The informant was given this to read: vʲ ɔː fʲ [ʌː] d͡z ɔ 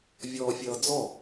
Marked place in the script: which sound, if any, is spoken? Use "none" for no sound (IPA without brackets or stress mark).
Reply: ʌː